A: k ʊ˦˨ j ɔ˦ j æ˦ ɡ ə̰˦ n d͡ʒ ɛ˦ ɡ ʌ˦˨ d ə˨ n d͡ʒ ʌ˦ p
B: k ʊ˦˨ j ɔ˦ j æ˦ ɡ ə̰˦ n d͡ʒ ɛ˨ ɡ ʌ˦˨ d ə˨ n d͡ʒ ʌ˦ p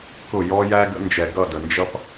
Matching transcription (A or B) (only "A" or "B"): B